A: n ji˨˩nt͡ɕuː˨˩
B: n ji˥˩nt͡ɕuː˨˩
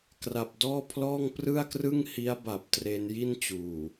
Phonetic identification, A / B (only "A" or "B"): B